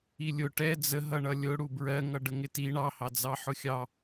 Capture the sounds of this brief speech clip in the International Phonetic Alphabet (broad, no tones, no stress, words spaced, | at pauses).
ilʲʊ ʈɛ d͡zəɦʌɳʌ lʲʊ ɽubɹɜŋʌ ɖəŋɪti ɳɑhɑ d͡zɑħʊxʲɑ